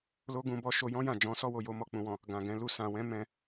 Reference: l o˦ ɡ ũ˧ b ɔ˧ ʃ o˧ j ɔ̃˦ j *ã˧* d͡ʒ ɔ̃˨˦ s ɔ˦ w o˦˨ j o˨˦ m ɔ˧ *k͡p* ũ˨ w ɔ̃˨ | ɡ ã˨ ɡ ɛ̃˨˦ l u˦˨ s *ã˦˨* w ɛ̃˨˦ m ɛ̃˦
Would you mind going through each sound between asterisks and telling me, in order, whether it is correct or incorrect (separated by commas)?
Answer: incorrect, correct, incorrect